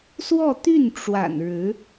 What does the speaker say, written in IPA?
s w ɔ˥˧ t̪ y˥˩ n ʈ͡ʂ w a̰˨˩ n ɻ ɻ̩˧˥

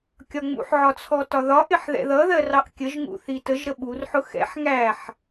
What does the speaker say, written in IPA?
kʲ ɒ ŋ͡m ṵ ħ ʕ ɒ t͡sʰ ɔ t ɒ ð ɒ ʔ ɪ ħ ð ɛ̰ ð ʌ ð ɜ r ɑ ʔ kʲ ə ʒ ŋ ṵ θ i t ə ʒ ɾ ə ɓ u r ħ ʊ x ɛ̰ ħ ŋ æ ħ

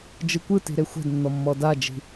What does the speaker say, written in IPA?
d͡ʒ ɯ kʷ ɯ t i̤ ɾ e xʷ ɛ̤ d nː ɔ mː ɔ d a d͡ʒ i̤

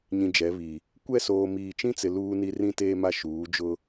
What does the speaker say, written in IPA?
ɲ ĩ˨ d͡ʒ ɛ˨˦ β i˨ | kʷ ɛ˦˨ s oː˨ m iː˨ t͡ʃ ĩ˦ t͡s ɪ˨ l uː˦ n i˦ r ĩ˦ t eː˦ m a˦ ʃ uː˨˦ d͡ʒ ʊ˦

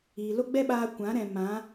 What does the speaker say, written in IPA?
iː˨ l o˦ ɡ͡b ɛ˦ ɓ aː˧ kʷ ã˨˦ ɾ ɛ̃˨ m ã˨˦

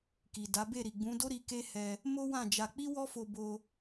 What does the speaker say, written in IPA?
k i˨ d a˨˦ b e˦˨ ɾ i˨ ɡ͡b ũ˨˦ d o˦ ɾ i˧ k e˦ h ɛ˧ | m o˦ w ã˦˨ d͡ʒ a˧ k͡p i˦ w ɔ˦ f o˧ b o˧

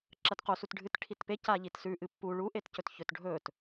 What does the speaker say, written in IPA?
ǁ ɐ t q o s u t ɖʱ ɨ t ʈʰ i t p e c a ʎ i t s ʉ ʔ ɨ pː u ɭ u ʔ e t c ɵ t ç ɵ t ɖʱ ɵ t

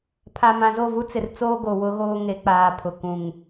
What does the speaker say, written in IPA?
pʰ a˨ m ã˨ z o˦˨ v u˦ t͡s ɪ˨ r t͡s oː˦ ɡ o˨ w ʊ˦ ɣ oː˦ ŋ e˨˦ k͡p aː˨ pʰ ʊ˨ k ũ˨ ŋ

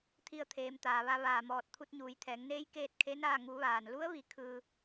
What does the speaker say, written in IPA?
t̪ʰ i˧ ə̯ t̪ʰ eː˩˧ m t̪ aː˩ ʋ a˧ ʋ aː˧˩ m ɔː˧˩ t̚ t̪ʰ u˧ t̚ ɲ uː˩˧ j t̪ʰ ɛː˩˧ ŋ n eː˧˥ j k eː˥˨ t̚ kʰ e˧˥ n aː˥˨ ŋ u˩˧ ʋ aː˩ n l u˧˥ ə̯ ʋ i˧ kʰ ɯː˧

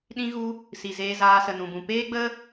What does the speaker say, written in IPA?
ɗ ĩ˧ ɣ u˧ | s i˨ z eː˧ z aː˧ s ə˨ n ũ˨ b ũ˨ p eː˦ ɡ͡b ə˦

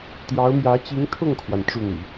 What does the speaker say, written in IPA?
t̪ j ɑ˧˥ ʊ̯ m j ä˧˥ t͡ɕ i˧˥ ŋ t̪ʰ ʊ˥˩ ŋ kʰ w a˩ n ʈ͡ʂ u˥˩ n̪ ḭ˨˩˦

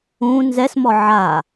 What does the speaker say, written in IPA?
ũ n z ɛ s m ɔ ʕ a

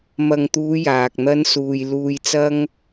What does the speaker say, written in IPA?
m ɐ˨ ŋ t̪ uː˨˧ j aː˨ k̚ n̪ ɐ˥ n s uː˧ j l uː˧ j t͡s ɐ˥ ŋ

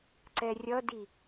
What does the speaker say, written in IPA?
ǀ ɛ rʲ ʌ d i

